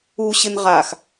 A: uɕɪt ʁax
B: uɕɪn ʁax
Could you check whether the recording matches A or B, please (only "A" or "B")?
B